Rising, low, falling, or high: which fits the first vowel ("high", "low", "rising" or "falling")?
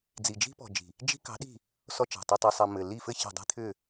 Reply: low